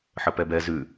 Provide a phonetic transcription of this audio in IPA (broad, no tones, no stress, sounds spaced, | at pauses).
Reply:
ħ ə p ɛ b ɛ z ʉ